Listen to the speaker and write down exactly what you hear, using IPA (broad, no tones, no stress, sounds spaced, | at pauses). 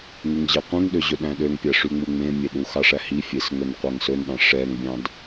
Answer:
ŋ y ŋ ʑ ɛ qʷ ĩ ŋ ɗ ø ʑ ɵ ɗ æ̃ ɗ ø ŋ pʲ æ ʂ y ŋ͡m u ŋ͡m ẽ mʲ e ɗ u x ɑ ʂ æ h i fʲ e s ŋ ɵ n qʷ æ ŋ s ɵ n ɗ ɑ̃ ʂ ɛ ŋ bʲ ɑ̃ d